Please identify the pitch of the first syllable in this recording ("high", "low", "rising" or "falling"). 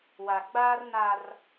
low